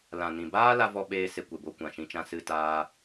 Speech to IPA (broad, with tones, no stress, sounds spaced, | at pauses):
l ã˨ n ĩ˨ b aː˦ l a˦ v ɔ˧ ɓ eː˧ s e˦ kʷ e˧ b o˦ kʷ ã˨ ʃ ĩ˧ t͡ʃ ã˧ s ɨ˦ t aː˦